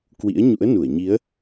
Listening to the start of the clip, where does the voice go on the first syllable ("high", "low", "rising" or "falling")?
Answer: rising